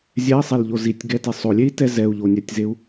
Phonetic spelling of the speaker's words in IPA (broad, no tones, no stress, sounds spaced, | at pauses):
zʲ ɛ i̯ sˤ e l ʎ o z i tʲ ɡ ɛ t e sˤ o lʲ e i̯ t ɛ z ɛ u̯ ʎ o nʲ ɛ tʲ z e u̯